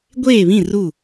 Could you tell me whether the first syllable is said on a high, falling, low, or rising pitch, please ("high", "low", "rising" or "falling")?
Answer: falling